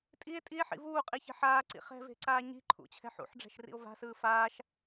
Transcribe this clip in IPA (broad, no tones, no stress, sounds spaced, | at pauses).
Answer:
tʼ i e̯ tʼ i e̯ ħ ḭ v uː qʼ i ç e̤ ħ aː ǀ ḭ χ ɛ̤ v e̤ ǀ aː ɲ i̤ ǃʰ ṵ t͡ɕʰ ɛ̤ ħ ṵ ħ ɖ͡ʐ ɛ̤ ʃ r ḭ o̯ v a̤ s ɯː f aː ʃ